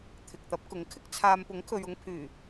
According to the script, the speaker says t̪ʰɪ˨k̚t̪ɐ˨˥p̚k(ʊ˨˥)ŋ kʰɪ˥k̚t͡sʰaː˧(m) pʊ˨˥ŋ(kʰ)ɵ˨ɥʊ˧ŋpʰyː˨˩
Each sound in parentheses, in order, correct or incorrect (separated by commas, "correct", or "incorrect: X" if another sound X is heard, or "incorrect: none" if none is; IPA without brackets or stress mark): correct, correct, correct